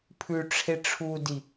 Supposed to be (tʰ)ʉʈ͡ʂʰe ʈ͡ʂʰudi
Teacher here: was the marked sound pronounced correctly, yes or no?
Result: no